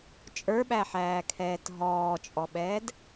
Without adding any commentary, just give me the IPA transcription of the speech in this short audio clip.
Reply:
t͡ʃʼ ə˞ ɓ æ ħ æː kʰ ɛː t ɦ ɔː t͡ʃʼ ɔ ɓ ɛː d

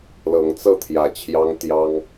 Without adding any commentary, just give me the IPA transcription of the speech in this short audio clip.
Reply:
l ɤ˨˦ ŋ t͡s ɤ˥˨ t̪ʰ j ä˨˩ t͡ɕʰ j ɑ˦ ŋ t̪ j ɑ˦ ŋ

